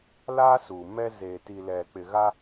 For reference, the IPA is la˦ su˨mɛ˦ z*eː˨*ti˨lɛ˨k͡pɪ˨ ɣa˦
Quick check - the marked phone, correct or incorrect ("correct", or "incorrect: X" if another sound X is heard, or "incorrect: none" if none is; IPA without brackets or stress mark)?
correct